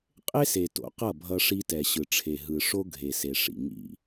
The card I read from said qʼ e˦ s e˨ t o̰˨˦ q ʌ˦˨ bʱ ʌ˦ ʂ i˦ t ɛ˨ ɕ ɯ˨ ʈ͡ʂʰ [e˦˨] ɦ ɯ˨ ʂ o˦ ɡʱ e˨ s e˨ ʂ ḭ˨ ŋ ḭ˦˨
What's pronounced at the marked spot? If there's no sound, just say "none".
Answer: e˨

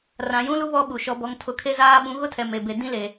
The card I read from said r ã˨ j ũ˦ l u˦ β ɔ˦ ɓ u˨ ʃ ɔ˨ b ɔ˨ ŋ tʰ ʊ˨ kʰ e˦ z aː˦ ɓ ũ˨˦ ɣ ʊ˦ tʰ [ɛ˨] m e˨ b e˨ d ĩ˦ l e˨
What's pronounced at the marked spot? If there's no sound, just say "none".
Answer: ɛ˨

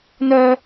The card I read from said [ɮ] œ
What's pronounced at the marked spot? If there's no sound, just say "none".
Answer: n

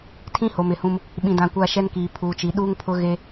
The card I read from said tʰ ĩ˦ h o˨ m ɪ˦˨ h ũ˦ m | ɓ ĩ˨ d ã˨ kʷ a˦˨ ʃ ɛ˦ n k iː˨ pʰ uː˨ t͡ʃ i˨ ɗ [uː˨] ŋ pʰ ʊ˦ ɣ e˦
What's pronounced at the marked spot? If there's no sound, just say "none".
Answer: uː˦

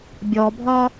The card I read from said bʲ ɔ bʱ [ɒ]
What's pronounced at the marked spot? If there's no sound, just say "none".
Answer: ɒ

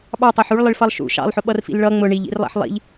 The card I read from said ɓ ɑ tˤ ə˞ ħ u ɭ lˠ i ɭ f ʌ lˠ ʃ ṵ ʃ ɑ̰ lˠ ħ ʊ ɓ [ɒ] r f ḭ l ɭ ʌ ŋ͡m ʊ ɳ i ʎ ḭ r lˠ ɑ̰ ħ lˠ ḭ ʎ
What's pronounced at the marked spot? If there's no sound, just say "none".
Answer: ʌ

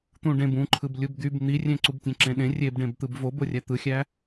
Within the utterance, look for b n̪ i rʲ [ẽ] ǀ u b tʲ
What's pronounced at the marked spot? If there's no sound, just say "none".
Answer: ẽ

